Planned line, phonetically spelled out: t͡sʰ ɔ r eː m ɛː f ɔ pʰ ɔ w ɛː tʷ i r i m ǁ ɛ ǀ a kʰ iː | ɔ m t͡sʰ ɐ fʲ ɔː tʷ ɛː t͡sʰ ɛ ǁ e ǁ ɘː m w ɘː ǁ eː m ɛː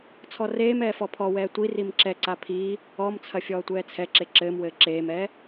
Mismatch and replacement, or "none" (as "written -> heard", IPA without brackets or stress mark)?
kʰ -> pʰ